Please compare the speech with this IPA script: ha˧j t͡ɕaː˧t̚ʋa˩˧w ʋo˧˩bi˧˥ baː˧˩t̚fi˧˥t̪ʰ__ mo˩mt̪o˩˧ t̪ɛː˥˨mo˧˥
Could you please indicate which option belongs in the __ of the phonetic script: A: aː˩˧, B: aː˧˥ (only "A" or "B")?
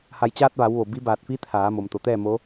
A